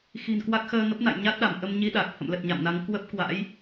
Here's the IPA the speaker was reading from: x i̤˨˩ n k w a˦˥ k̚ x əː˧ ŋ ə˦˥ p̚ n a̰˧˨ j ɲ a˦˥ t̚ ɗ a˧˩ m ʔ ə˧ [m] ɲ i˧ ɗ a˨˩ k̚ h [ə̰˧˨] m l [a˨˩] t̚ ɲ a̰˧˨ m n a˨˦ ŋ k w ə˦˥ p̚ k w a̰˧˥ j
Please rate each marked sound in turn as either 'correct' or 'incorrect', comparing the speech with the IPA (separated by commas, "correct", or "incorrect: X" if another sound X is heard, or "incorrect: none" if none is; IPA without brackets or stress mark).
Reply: correct, correct, incorrect: ə˨˩